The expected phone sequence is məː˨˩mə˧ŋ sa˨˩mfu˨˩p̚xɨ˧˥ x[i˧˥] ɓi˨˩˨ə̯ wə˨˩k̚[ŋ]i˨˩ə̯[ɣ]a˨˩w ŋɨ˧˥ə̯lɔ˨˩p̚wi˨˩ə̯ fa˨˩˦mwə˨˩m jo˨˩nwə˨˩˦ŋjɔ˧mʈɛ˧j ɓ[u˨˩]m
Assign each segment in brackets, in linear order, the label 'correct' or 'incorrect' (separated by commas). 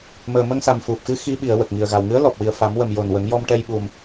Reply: correct, correct, correct, correct